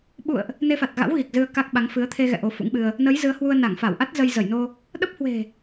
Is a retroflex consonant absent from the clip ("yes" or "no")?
yes